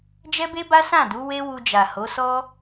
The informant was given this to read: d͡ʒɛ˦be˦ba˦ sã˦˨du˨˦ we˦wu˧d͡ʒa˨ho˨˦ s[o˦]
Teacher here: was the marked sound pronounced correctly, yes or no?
no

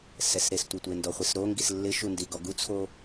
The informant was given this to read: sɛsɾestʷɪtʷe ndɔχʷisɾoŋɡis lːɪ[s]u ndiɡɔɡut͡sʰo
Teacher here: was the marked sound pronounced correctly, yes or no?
no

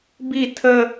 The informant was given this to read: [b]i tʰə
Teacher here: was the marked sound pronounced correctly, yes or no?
yes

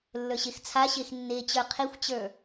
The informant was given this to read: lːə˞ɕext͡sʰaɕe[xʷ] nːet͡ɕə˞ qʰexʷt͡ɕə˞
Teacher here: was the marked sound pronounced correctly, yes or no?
no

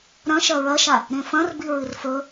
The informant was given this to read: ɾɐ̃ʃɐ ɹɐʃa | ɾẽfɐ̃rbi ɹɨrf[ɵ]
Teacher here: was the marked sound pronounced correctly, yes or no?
yes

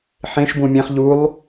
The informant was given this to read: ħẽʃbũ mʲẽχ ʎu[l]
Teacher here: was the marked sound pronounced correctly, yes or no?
no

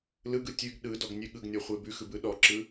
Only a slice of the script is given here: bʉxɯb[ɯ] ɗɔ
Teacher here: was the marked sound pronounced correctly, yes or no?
yes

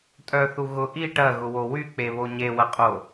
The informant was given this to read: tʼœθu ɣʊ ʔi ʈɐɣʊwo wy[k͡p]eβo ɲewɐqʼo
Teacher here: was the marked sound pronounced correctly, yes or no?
yes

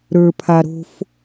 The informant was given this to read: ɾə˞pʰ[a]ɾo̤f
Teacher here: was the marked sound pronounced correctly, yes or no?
yes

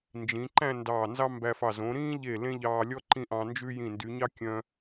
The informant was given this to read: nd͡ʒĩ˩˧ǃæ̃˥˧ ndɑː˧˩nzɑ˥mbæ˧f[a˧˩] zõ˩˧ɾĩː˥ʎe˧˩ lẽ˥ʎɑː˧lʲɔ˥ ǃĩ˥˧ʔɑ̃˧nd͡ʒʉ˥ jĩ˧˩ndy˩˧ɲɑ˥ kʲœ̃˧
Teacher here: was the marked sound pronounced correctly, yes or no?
no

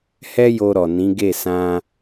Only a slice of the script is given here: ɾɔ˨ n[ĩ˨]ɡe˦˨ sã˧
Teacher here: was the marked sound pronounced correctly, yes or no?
no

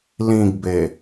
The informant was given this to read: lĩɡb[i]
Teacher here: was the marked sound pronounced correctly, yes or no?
no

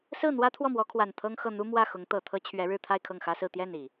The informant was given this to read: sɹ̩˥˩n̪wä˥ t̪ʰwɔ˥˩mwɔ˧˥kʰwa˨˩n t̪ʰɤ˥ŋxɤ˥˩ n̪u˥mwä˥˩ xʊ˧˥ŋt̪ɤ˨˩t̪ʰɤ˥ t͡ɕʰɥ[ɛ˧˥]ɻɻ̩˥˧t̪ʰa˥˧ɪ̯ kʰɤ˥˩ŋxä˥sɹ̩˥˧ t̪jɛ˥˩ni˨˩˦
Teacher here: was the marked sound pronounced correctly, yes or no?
yes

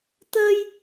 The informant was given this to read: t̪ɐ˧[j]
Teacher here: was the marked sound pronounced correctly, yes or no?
yes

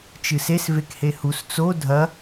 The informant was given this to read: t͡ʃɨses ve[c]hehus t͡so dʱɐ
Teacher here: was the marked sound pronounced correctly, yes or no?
no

